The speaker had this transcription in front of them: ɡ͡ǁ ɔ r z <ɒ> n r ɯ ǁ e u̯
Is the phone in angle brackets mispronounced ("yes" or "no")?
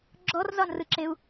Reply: no